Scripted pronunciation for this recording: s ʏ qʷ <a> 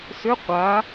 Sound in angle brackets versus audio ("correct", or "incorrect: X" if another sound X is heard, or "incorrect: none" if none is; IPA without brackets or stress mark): correct